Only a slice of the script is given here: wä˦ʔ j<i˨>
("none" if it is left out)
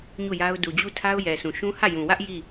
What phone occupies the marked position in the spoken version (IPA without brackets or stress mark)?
i˦˨